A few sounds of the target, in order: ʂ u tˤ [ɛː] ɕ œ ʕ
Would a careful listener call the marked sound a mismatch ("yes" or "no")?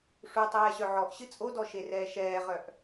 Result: no